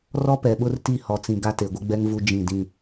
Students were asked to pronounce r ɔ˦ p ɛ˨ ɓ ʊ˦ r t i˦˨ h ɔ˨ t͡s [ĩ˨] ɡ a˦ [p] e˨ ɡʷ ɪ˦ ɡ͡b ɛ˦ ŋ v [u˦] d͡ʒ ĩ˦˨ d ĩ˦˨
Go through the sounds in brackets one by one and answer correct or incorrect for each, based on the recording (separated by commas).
correct, incorrect, correct